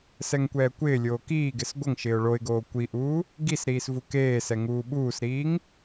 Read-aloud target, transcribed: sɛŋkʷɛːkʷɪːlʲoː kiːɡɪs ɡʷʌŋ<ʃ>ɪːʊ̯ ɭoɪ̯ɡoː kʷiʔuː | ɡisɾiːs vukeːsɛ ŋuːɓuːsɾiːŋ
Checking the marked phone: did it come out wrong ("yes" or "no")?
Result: no